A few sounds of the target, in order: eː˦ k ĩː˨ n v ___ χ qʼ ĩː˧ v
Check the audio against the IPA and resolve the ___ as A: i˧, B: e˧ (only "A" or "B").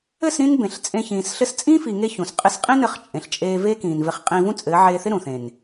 B